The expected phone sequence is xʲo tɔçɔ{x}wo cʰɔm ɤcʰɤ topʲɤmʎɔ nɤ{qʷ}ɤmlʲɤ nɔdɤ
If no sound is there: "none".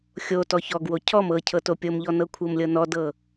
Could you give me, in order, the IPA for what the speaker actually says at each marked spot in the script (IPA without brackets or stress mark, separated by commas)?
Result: ɡ, kʷʰ